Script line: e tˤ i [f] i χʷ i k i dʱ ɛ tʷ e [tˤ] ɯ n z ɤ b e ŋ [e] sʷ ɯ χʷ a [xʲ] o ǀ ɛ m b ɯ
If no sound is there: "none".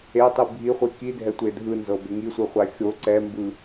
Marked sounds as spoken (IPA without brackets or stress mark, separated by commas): bʱ, dʱ, i, xʲ